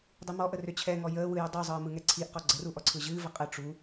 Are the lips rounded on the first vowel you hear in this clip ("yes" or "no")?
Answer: no